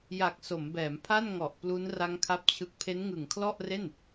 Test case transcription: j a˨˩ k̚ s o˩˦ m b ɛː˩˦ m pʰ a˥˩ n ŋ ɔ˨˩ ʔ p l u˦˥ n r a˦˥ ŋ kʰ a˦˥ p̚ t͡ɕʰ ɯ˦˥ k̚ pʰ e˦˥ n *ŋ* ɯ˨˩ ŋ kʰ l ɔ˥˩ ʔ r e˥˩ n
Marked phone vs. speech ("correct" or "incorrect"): correct